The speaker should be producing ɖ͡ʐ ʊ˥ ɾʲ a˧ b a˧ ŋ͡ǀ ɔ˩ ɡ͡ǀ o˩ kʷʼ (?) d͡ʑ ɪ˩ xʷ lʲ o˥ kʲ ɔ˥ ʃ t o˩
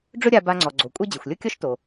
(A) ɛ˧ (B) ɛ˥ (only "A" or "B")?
B